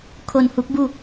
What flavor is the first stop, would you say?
aspirated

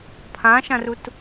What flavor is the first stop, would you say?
aspirated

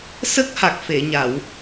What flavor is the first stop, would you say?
plain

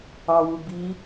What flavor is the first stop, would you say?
plain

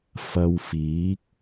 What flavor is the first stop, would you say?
plain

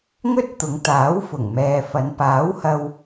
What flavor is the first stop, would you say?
plain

